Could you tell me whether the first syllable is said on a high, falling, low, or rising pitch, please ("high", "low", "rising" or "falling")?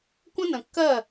high